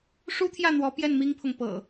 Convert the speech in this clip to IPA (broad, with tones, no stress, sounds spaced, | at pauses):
ʂ u˦ t̪ʰ j ä˥˨ n̪ w ɔ˨˦ p j ɛ˥˨ n m i˦ ŋ pʰ ʊ˨ ŋ p ɤ̰˨˩